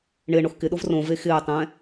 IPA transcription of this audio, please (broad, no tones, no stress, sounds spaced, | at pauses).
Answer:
ɳ ɪː ɳ o x k ɪ ɗ o v r õ v e x ɪː tˤ ɛ̃